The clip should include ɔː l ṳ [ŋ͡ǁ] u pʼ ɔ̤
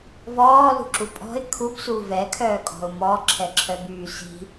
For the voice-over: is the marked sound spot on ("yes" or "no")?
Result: no